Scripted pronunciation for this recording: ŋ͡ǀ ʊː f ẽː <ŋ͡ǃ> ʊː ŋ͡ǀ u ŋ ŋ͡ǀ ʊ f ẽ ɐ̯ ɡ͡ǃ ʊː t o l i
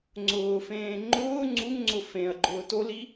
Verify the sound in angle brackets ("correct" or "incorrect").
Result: correct